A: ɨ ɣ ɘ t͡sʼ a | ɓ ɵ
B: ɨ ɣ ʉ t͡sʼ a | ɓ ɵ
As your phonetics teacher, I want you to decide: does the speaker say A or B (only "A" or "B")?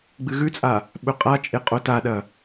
B